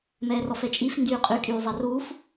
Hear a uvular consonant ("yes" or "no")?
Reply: yes